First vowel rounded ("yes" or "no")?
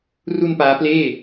yes